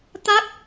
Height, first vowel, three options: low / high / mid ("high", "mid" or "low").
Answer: low